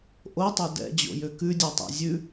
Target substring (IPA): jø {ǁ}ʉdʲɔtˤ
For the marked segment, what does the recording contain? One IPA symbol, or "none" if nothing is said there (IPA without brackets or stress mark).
k